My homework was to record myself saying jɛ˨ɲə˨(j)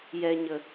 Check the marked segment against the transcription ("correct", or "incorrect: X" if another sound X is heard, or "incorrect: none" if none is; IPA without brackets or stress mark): incorrect: none